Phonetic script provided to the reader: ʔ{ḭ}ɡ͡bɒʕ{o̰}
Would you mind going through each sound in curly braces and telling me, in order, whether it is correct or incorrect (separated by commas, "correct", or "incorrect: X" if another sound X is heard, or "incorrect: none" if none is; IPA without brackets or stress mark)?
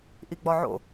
incorrect: i, correct